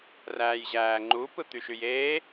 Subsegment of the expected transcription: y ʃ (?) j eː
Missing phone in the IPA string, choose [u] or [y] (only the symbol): y